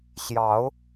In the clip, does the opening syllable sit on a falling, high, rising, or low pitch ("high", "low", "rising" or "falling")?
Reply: rising